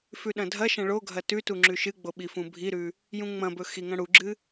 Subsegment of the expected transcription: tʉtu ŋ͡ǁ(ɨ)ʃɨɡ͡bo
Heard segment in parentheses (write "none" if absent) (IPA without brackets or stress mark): ʉ